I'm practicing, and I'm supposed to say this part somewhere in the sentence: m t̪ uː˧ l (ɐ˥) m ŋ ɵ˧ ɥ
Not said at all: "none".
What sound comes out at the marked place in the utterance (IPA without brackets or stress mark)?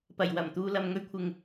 ɐ˨